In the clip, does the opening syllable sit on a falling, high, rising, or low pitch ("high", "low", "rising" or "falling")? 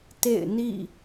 falling